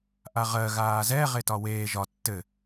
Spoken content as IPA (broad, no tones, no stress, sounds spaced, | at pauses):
ʔ a ʁ ɜ ɣ aː z ɛ ʁ e t ɒ w eː ʒ ɒ tː ɘ